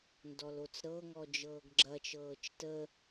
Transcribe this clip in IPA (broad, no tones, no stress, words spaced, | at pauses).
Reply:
ndɔlot͡sɾɤŋɔ d͡ʒɤːɡɡ͡ǁɐt͡ʃɤːt͡ʃ tə